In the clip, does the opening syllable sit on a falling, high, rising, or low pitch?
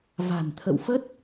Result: low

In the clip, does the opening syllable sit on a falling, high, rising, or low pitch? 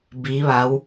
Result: rising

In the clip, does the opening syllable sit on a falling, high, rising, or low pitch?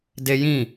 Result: high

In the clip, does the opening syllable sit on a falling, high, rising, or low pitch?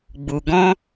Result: low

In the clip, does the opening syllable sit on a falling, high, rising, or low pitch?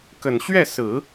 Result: low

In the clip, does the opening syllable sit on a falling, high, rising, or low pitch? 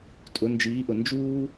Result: rising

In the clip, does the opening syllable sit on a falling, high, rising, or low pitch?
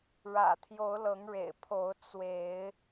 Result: low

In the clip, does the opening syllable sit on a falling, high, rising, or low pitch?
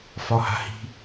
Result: low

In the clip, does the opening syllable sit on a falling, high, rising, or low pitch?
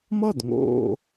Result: falling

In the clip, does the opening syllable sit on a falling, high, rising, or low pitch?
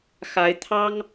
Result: rising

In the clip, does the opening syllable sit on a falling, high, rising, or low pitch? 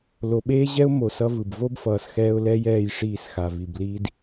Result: low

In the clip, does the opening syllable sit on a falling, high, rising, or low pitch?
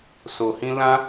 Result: low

